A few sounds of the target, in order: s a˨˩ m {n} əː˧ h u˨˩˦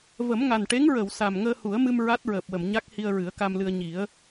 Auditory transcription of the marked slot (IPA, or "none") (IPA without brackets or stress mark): ŋ